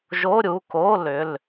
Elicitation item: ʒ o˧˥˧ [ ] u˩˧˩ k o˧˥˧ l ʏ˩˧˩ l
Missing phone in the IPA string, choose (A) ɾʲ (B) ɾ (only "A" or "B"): A